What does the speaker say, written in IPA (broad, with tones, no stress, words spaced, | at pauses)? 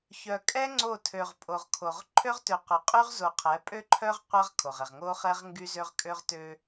çœ˨kʼɛ˦ ŋ͡ǀo˦˨tʰø˨ʁpʼo˨ʁkʰo˨ʁ ǃʰø˦ʁtø˨qœ˨qʼy˦ʁ zo˨qʰɛ˨˦pʼø˦ǃʰœ˦ʁ qʷa˦ʁ kʰo˨ʁɛ˨ʁ ŋo˦χɛ˦ʁ ŋɡy˦zø˦ʁ kʼø˦ʁtø˦